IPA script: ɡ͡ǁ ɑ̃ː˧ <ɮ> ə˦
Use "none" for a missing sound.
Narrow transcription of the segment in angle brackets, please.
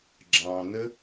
n̪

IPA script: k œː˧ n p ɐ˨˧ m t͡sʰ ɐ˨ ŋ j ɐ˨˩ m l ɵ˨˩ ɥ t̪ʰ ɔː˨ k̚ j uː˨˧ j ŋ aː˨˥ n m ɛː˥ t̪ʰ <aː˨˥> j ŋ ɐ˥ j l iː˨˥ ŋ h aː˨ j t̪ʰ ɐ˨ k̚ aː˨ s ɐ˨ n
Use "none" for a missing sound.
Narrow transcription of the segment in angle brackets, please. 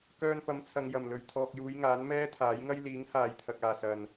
aː˨˥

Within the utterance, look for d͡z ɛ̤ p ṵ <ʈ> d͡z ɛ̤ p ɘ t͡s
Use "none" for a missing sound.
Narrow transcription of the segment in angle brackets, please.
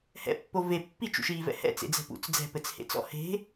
t͡s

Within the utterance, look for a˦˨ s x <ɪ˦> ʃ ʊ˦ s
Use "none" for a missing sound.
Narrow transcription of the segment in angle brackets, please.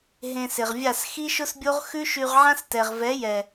i˦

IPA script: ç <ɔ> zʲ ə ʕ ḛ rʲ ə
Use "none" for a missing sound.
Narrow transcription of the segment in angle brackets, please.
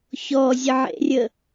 ɔ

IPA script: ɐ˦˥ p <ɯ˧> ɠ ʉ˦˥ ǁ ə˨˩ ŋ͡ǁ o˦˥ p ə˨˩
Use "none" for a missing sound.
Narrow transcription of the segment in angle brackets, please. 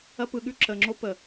ɯ˧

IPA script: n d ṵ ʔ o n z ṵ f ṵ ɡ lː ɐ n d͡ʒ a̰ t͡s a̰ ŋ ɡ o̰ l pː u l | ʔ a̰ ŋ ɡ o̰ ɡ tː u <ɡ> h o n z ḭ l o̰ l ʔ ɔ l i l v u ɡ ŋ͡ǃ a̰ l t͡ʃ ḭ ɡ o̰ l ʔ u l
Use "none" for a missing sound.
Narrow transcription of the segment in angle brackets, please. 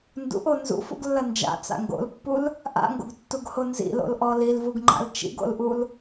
ɡ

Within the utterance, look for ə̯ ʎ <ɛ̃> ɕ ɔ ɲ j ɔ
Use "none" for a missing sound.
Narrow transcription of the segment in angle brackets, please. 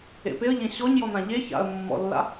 ẽ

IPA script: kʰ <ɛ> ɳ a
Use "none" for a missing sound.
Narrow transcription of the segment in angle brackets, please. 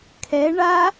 ɛ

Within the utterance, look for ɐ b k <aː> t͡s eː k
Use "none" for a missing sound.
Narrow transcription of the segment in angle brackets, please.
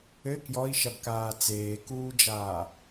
aː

